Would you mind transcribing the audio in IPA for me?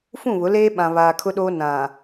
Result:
fũ˦˨βʊ˨˦leː˦ ɓã˨βaː˨kʰʊ˦ɗoː˦ nã˨

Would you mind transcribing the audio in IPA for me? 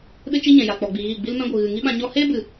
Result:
ɗɨ˦t͡ʃi˦ɲɛ̃˨ja˨ k͡pɔ˨ɡ͡bi˨ ɣiː˦˨ ɡ͡bi˦lmɛ̃˦ɡʷɨ˨ ɣɨ˨ŋi˦ɓã˧ ɲɔ˧heː˦bɨ˨

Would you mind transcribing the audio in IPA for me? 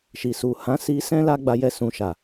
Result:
ʃi˨su˨ hã˨˦si˧ sɛ̃˦la˦ɡ͡ba˧jɛ˧ sũ˨ʃa˨

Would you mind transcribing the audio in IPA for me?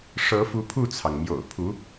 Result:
ʂɤ˧˥fu˧˥ pʰu˥˩t͡sʰɑ˩ŋmjo̰˨˩ʊ̯ pʰu˧˥

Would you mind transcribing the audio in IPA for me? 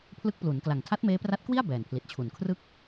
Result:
pʰlɯ˦˥k̚plu˩˦nkla˨˩ŋ tʰa˦˥t̚meː˦˥pra˦˥t̚kwi˥˩a̯ bɛː˨˩npʰli˨˩t̚t͡ɕʰu˨˩n kʰrɯ˥˩k̚

